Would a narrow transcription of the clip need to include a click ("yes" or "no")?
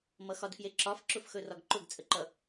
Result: yes